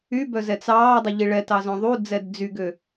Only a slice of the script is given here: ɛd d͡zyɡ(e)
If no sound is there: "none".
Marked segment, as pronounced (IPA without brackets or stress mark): ø